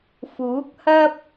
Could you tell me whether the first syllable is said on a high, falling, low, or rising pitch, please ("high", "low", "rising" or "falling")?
rising